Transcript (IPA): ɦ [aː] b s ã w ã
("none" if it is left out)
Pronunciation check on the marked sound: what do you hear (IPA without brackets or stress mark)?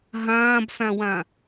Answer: ãː